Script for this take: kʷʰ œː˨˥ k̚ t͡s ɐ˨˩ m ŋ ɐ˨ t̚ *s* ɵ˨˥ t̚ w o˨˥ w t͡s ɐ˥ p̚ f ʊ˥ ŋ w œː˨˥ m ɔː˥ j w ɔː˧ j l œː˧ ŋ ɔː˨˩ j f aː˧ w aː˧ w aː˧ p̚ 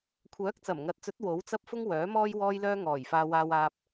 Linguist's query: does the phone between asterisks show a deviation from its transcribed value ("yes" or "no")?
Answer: yes